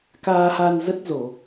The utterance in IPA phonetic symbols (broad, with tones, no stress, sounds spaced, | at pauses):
k aː˧ h a˧ n z ə˦˥ t̚ z o˧˩˨